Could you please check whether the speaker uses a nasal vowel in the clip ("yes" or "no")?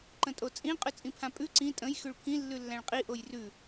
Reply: yes